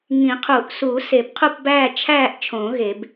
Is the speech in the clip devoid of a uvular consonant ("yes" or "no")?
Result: no